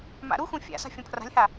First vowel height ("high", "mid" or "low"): low